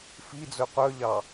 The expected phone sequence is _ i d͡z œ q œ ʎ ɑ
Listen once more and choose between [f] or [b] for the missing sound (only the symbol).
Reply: f